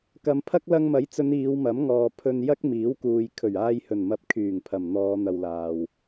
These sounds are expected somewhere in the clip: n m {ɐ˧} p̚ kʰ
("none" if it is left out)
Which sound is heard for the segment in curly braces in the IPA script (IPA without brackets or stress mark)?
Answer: ɐ˧